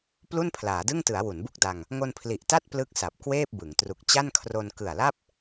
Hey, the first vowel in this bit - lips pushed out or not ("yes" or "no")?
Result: yes